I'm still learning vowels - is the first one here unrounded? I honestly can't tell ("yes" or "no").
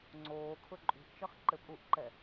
no